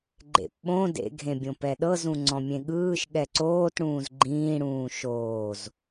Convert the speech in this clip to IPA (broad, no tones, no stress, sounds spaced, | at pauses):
ɡ͡ǃ ḛ p ɓ õ d ḛ ɡʱ ẽ bʲ õ p ɛ ɗ ɤ z ũ ŋ͡ǀ ɔ̃ mʲ ẽ ɠ ɯː ʃ ɠ ɛ ǀ oː t ɽ ũː z ɡ͡ǃ ĩː ɽ ũː ʃ oː z